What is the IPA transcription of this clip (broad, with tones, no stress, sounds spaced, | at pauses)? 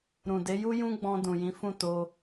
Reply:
ɾ ũ˨ d e˨˦ j u˦ j ũ˦ ɡ͡b ɔ̃˧ d ũ˨ j ĩ˨˦ f ũ˦˨ t o˧